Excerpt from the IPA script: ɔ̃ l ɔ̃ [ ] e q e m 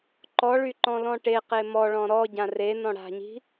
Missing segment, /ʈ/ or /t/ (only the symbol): ʈ